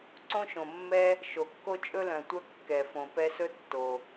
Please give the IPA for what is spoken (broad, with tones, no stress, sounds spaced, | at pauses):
ǀ õ˦ ʃ õ˩ mː ɛ˦ | ʃ o˩ kː o˥ t͡ʃʼ ɵ˥ l œ̃˩ tʷ œ˦ kː ɛ˩ f õ˩ p ɛ˦ s ɵ˥ tː o˩